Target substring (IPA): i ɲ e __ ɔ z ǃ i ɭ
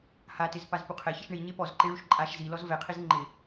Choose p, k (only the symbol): p